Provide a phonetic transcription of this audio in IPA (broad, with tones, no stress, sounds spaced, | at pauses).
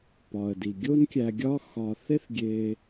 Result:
p ɒ˩ ə̯ d i˩ ɡʲ o˥ n kʲ æ˧ ɡʲ ɒ˥ x ɒ˧ θ e˥ θ ɡʲ e˧